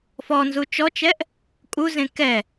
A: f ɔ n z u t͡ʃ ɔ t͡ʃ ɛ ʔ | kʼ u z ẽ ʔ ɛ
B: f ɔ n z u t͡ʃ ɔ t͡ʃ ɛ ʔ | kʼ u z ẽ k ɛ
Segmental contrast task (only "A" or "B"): B